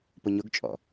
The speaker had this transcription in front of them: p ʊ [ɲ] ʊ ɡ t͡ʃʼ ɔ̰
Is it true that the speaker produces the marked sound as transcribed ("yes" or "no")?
yes